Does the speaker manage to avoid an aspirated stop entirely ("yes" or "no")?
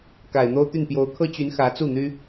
no